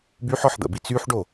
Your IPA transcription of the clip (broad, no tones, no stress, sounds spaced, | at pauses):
b y ħ ɔ ħ d̪ ə̰ b i t͡s y ħ ɖ o